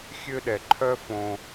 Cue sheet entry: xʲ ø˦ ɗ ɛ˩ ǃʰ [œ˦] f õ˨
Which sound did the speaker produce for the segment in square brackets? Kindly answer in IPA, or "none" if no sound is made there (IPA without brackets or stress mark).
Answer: œ˦